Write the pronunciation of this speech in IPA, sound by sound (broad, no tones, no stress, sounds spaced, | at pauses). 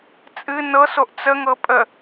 t͡sʼ ɨ n ɤ s o ʔ t͡s ə ŋ ɤ pʼ ə